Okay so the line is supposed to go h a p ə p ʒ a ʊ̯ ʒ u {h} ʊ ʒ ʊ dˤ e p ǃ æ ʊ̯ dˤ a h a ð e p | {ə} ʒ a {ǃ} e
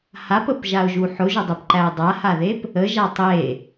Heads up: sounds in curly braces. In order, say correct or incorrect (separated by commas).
incorrect, correct, incorrect